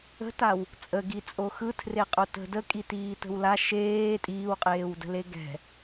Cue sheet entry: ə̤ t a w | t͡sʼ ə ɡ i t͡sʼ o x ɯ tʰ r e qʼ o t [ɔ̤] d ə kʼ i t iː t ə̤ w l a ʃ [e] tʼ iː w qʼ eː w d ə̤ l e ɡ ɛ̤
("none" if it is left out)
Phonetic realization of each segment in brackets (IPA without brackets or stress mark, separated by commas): ə̤, eː